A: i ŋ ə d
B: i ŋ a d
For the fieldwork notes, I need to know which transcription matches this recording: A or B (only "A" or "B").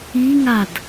B